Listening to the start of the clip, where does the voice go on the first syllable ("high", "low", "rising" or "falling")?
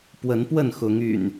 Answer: rising